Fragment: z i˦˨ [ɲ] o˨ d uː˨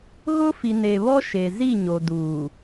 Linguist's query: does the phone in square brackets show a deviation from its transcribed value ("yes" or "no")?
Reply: no